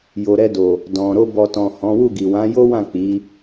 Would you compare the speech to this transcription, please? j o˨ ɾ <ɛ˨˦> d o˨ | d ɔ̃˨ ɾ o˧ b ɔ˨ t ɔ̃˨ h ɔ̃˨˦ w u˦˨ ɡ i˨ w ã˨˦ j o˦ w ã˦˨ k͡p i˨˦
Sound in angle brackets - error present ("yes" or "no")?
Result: yes